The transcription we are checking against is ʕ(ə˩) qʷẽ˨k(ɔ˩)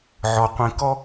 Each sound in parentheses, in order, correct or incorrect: incorrect, incorrect

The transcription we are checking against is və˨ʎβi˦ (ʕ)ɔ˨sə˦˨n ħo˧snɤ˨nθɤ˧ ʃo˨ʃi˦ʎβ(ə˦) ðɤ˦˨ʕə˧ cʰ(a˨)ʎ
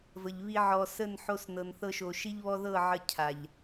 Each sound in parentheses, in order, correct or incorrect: correct, incorrect, correct

